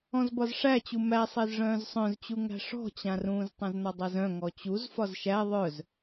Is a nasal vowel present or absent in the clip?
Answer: present